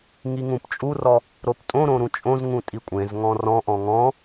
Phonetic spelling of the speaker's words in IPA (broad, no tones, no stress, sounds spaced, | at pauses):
ŋ i ŋ ũ p t͡ʃʼ u r ɔ | ɾ o p tʼ õ ɾ õ ɾ ũ t͡ʃʼ õ z ŋ ũ tʼ i kʷʼ ẽ z ŋ ɔ̃ r ɔ̃ ʔ ɔ̃ ŋ ɔ̃